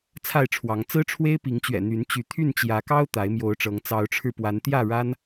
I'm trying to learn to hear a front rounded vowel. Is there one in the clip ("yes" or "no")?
yes